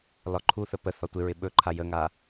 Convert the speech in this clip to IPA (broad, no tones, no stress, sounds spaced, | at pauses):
l ɒ ǃʰ u θ ə p ə θ ɒ tʷ ɪ ɹ ɪ ɓ ɵ ǃʰ a j ə ŋ a